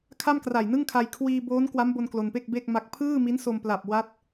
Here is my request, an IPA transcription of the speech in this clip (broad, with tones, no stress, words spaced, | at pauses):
kʰa˥˩mkra˨˩jnɯ˥˩ŋkʰa˧j kʰwiː˧boː˦˥nkwa˦˥mbo˧n klo˧npe˥˩k̚be˥˩k̚ma˦˥k̚ pʰɯː˥˩mi˦˥nso˧mpla˨˩p̚ wa˦˥t̚